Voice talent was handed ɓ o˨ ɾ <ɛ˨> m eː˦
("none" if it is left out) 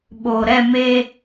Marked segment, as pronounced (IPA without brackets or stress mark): ɛ˦˨